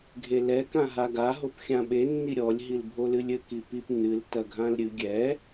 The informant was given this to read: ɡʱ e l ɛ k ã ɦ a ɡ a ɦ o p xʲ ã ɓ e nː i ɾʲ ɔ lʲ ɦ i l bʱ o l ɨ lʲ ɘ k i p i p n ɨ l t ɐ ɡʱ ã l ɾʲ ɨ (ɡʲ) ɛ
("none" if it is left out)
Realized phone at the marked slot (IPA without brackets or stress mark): ɡʲ